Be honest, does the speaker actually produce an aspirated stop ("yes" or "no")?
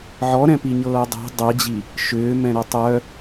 no